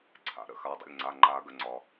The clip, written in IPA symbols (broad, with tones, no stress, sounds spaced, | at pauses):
ǀʰ a̰˩ ɾ ə̰˥˩ x a˩˧˩ dˤ ə̰˩˧˩ lʲ ŋ͡ǀ a˩˧˩ ŋ͡ǃ a˨˩˦ ɡ ə˩ ŋ͡ǀ ɒ˩